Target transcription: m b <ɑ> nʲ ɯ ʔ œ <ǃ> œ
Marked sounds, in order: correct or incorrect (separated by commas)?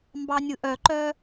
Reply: correct, correct